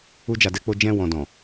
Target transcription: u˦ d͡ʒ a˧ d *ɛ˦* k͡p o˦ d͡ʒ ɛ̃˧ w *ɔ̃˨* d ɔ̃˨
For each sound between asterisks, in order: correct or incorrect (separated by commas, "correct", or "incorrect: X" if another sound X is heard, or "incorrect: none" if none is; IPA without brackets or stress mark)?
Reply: correct, correct